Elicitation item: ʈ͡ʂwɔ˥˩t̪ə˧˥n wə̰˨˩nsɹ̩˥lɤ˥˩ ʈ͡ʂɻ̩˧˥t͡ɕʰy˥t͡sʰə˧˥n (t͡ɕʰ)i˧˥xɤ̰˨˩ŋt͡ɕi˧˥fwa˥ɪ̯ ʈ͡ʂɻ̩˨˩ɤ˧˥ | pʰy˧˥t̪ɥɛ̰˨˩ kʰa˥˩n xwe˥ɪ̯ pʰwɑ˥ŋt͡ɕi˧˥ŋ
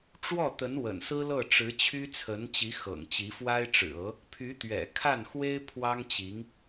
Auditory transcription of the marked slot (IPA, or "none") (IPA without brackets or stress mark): t͡ɕ